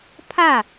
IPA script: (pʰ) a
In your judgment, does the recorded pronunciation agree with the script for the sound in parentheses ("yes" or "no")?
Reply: yes